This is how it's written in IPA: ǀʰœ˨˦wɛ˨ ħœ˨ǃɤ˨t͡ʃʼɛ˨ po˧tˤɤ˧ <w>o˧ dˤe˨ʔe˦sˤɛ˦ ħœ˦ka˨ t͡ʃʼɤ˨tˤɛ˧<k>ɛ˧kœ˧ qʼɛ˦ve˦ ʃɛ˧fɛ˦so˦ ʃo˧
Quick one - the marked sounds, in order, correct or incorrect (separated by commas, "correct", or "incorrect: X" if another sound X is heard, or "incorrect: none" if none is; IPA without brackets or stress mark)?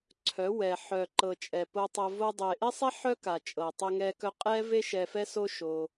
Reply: incorrect: v, incorrect: ŋ